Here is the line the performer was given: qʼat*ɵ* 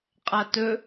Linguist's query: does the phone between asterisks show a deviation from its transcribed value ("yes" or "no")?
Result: no